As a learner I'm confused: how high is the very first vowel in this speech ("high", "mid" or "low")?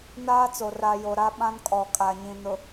low